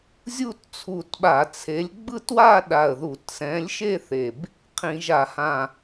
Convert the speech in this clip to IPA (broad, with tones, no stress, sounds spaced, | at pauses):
zʲ u˥˧ t t͡sʰ u˧˩ t ɓ a˧˩˧ t͡sʰ e˨˥ lʲ ɡ͡b ɯ˥˧ t w a˥˧ ɗ a˧˩ ə̯ ð u˧˩˧ t s ɛ̃˨˥ lʲ ʃ e˥˧ θ e˧˩ b | qʰ ĩ˧˩˧ ʒ a˧˩˧ h ã˧˩